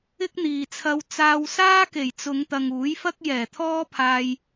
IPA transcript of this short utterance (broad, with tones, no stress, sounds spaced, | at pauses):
ɪ˥ k̚ n̪ iː˨ t͡sʰ ɐ˧ w t͡s aː˧ w s aː˥ k e˨˩ j t͡s ʊ˨˧ ŋ t̪ ɐ˨ ŋ uː˨˥ j f ɐ˥ k̚ j ɛː˨˩ t̪ʰ ɔː˥ pʰ aː˧ j